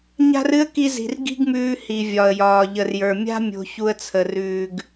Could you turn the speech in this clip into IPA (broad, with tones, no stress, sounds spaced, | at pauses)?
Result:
ɲ a̤˦ r ɨ˦ ə̯ k i˧ z i̤˨ r ɡ i̤˦ ɡ m ʉː˧ h i˨ vʲ ɒ˨ ə̯ j ɒː˨ ʎ ə˨ r j ə˞˨ mʲ a̤˦ mʲ o̤˧ ç u˧ ə̯ t͡sʰ ə˨ r ʉː˨ ɡ